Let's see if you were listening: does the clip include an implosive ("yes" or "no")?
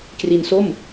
no